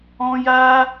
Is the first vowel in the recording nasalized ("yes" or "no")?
yes